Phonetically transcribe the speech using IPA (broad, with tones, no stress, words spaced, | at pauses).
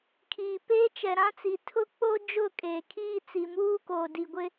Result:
kʰiː˨ peː˦t͡ʃɛ˨ɾã˦t͡si˨ tʰʊ˦k͡po˦ d͡ʒʊ˦˨kʼeː˨kʰiː˦ t͡si˨muː˦koː˨ di˨ɡʷɪ˦